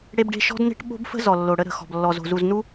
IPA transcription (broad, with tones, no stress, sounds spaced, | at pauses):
ɽ e˦ b ɖ e̤˦ ʃ ɔ̤˦ d n e̤˦ ʈ ɓ o̤˦ b f ə̤˦ z ɔ˨ lː o˨ ɽ ə˦ ɾ ə̤˨ x ɔ̤˨ b lː ɔ˨ z o̤˨ z u˨ z n u˦